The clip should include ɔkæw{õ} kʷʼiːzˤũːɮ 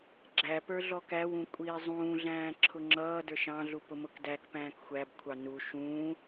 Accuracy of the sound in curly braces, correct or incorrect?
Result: incorrect